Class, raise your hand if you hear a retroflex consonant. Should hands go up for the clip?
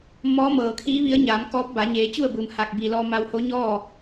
no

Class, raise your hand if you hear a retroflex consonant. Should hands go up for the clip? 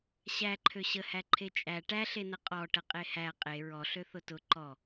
yes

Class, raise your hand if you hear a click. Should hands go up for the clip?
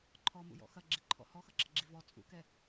yes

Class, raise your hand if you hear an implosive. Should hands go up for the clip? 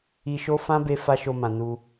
no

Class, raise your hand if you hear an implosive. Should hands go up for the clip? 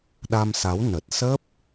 yes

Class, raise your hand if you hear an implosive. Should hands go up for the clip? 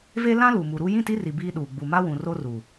yes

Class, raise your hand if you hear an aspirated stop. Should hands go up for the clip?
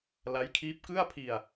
yes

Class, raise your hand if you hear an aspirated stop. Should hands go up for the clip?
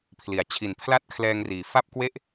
yes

